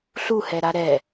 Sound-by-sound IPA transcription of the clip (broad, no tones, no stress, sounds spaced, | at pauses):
ɬ u h ɛ ɾ a ɾ ɛ